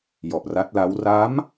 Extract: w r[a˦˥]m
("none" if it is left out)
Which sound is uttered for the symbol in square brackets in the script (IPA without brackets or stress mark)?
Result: a˦˥